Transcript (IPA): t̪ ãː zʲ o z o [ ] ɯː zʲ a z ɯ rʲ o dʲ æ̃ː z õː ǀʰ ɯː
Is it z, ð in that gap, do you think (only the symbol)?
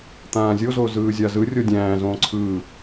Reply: z